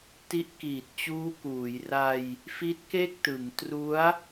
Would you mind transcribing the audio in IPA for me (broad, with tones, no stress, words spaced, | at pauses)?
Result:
ti˦˥ʔkiː˨˩t̚t͡ɕuː˦˥ kuː˩˦j ra˧j | fi˦˥t̚ke˥˩k̚tɯ˩˦ŋ tru˦˥a̯